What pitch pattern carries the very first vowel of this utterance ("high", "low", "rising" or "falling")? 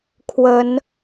rising